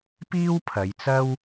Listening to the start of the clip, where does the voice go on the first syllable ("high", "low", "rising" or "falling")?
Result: high